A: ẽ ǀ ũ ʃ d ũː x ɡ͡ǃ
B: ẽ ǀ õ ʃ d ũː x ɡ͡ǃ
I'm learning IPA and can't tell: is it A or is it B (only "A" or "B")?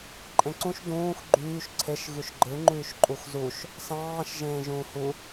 A